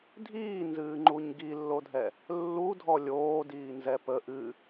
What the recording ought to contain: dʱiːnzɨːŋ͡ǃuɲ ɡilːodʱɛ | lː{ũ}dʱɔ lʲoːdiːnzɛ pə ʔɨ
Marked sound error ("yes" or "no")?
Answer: yes